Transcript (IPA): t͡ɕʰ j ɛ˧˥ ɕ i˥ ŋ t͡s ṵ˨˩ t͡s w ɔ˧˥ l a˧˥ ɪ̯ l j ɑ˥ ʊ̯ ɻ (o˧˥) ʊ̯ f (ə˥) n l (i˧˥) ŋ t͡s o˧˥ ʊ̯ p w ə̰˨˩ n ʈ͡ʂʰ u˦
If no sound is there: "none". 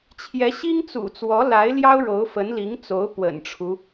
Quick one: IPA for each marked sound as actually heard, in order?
o˧˥, ə˧˥, i˧˥

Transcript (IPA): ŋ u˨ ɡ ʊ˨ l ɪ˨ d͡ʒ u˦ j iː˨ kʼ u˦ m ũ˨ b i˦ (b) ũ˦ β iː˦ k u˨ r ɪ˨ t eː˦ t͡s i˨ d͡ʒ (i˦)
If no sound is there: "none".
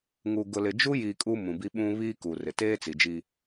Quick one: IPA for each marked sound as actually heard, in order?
ɓ, i˦

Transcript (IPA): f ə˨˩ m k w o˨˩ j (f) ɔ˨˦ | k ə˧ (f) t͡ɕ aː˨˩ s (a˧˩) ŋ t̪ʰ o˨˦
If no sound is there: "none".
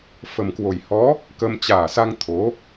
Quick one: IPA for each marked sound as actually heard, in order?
h, m, a˧

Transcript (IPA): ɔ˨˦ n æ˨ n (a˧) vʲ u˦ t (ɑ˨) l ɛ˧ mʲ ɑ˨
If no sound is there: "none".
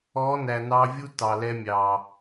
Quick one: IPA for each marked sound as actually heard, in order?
ɑ˧, ɑ˨

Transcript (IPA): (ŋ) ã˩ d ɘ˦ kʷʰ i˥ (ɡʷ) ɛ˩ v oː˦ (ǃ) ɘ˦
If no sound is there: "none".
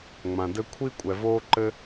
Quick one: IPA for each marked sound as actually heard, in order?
ŋ͡m, kʷʼ, ǃ

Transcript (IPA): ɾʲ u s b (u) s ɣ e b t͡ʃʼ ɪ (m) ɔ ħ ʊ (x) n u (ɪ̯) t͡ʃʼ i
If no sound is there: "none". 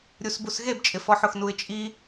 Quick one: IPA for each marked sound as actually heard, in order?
u, f, x, ɪ̯

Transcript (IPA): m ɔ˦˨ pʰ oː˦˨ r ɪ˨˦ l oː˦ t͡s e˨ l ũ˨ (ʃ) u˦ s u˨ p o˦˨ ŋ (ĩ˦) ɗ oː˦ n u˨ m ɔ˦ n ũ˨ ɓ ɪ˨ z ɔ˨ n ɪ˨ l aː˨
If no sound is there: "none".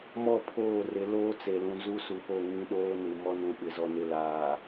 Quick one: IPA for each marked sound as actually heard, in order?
z, ĩ˦

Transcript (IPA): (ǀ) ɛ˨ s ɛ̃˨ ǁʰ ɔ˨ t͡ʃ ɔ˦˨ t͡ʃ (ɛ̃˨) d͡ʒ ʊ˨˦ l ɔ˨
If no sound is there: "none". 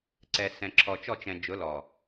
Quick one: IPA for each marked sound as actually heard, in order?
ǀ, ɛ̃˨

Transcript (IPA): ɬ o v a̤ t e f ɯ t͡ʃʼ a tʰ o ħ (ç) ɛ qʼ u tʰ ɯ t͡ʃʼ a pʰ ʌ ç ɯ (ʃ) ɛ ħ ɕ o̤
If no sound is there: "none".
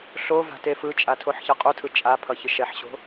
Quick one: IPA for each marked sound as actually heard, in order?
ç, ʃ

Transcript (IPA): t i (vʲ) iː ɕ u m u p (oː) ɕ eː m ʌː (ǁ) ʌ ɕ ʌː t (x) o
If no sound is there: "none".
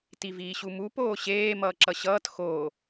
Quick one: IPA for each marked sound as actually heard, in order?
v, oː, ǁ, x

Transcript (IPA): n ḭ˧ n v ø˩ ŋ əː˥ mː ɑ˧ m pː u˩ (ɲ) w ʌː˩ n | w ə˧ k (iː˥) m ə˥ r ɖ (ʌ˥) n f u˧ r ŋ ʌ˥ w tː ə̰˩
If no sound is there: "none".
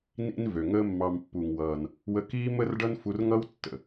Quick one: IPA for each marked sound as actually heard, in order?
ŋ, iː˥, ʌ˥

